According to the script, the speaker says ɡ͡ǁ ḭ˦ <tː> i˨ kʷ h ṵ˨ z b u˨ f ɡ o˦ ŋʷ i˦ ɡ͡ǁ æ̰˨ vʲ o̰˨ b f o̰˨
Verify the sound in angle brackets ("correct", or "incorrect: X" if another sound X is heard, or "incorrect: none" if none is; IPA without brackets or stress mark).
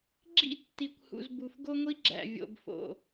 correct